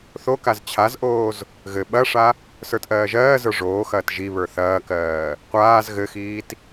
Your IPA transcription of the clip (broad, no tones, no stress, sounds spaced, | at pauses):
θ o k a z t͡ɕʰ a z ʔ oː z | ɣ ɘ ɓ ɐ ʂ a | s ə˞ t ʔ ɜː ʒ ɜː z ə˞ ʐ oː x ɐː t ʒ i β ə˞ θ ɐː k ɜː | qʷ aː z ɣ ɘ x iː t